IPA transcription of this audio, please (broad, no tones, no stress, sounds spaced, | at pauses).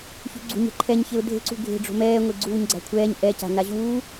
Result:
ç ṳ ɡ͡ǀ ṳ ɲ ɛ̤ ǃʰ ɛ ɲ ç e ʊ̯ dʱ e̤ ǀ ṳ ɡʱ e̤ ɖ͡ʐ o̤ m ɛː ŋʷ e ɡ͡ǀ uː ɲ ɡ͡ǀ a̤ kʷʰ ɛː ɲ ʔ ɛ c a̤ n a ʑ uː